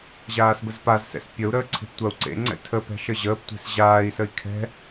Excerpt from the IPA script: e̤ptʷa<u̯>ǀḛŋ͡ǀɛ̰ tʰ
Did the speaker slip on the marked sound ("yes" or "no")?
no